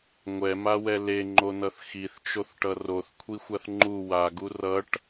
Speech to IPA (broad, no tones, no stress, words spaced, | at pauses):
ŋʷɛmawɛ leŋ͡ǃonʌθ xiθt͡ʃoθʈʌ roθkʷʰixʷaθ ŋ͡ǃu waɡu rʌʈ